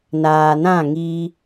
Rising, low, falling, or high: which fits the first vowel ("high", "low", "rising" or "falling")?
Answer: low